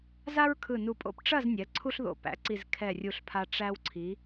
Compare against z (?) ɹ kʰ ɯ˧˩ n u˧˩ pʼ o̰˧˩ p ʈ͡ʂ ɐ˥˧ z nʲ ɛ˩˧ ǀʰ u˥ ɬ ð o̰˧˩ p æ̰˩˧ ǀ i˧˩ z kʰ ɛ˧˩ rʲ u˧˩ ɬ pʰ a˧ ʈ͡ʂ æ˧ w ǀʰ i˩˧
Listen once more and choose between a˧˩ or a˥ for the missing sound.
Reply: a˥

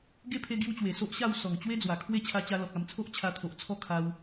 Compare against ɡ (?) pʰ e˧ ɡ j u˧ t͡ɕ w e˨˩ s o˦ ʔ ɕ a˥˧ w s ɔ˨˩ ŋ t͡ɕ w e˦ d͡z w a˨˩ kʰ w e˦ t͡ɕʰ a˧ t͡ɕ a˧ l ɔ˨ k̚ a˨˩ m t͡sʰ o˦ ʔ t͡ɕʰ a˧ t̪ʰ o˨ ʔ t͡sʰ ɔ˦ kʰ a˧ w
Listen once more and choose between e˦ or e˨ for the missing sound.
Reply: e˦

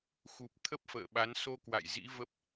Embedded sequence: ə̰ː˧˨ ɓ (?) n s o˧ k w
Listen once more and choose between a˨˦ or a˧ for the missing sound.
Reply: a˨˦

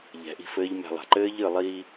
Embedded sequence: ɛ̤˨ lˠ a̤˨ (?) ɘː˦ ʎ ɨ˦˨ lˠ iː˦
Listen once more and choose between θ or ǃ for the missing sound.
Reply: ǃ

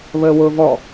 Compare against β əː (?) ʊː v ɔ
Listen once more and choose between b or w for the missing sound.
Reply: w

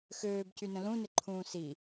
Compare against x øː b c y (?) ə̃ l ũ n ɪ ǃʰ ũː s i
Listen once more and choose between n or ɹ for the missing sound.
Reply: n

